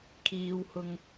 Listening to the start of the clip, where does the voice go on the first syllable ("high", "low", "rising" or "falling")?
low